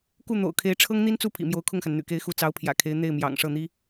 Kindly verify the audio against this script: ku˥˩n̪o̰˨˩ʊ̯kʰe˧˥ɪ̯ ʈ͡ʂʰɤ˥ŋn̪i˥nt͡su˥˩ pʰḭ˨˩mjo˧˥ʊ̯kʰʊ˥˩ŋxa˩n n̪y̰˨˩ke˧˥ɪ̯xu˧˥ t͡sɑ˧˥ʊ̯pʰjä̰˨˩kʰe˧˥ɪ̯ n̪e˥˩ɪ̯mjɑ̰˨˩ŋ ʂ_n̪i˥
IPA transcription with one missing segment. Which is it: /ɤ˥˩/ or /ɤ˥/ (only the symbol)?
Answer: ɤ˥˩